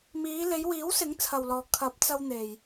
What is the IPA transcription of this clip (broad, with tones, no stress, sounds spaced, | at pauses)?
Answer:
m iː˨˧ l e˨˧ j w iː˨˥ w s ɪ˨˥ ŋ t͡sʰ ɐ˨ w l ɔː˨ kʰ ɐ˨˥ p̚ t͡s ɐ˧ w n̪ e˨ j